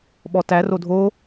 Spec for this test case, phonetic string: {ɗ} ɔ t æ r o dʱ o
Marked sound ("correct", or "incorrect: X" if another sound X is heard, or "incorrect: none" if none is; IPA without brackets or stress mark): incorrect: ɓ